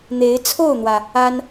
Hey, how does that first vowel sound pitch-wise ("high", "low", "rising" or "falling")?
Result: rising